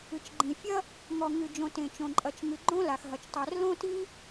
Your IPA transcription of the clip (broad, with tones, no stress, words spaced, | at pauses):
ɨ˩t͡ʃɡ͡ǃĩ˩fʲɐ˥ | ŋɔ˩ŋɨ˩d͡ʒõ˩ tẽ˩t͡ʃõ˩ ǃʼɐ˩t͡ʃŋɨ˩ ɡ͡ǃõ˥la˩xɦɐ˩t͡ʃ tˤɛ˩r lõ˥ti˥